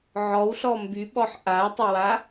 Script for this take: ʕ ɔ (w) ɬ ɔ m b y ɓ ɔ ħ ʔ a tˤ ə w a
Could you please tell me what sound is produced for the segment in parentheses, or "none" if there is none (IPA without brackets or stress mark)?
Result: w